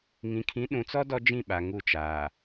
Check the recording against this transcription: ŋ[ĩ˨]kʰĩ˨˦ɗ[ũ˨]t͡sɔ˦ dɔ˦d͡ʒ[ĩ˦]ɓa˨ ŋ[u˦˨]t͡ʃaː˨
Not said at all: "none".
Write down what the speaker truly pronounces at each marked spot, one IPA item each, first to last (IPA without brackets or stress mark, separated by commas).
ĩ˨, ũ˨, ĩ˦˨, u˦˨